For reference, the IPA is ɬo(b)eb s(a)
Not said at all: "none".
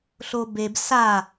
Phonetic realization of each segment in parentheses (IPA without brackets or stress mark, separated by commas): b, a